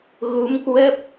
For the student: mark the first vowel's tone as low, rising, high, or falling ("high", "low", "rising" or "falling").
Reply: rising